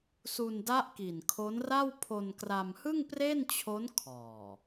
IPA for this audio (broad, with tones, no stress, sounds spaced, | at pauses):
s u˧ n d a˦˥ ʔ k i˨˩ n kʰ o˦˥ n r a˥˩ w pʰ o˧ n k r a˧ m h ɯ˥˩ ŋ p r e˥˩ n t͡ɕʰ o˦˥ n kʰ ɔː˨˩